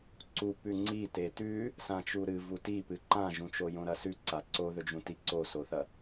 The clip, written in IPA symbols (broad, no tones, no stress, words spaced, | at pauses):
ǀupʉ ŋ͡ǀi tetʉ | sãt͡ʃuɾɨ vutipɨ ǃãʒũt͡ʃo jõɾɐsʉ ǀaǀoðɵd͡ʒũ tiǀosoθɐ